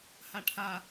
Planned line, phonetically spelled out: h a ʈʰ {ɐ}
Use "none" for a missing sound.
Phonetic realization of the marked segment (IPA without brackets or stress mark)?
a